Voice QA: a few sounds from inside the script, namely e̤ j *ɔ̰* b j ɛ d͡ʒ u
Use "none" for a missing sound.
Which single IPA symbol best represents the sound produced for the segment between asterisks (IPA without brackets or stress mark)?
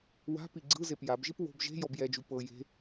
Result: ɔ